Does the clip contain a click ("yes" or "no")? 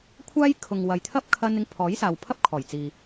no